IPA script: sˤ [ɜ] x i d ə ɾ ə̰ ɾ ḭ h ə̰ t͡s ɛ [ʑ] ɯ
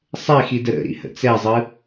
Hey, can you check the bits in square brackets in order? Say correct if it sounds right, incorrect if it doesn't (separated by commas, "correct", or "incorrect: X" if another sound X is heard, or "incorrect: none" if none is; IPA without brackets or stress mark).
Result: incorrect: ɛ, incorrect: zˤ